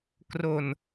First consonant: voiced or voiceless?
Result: voiceless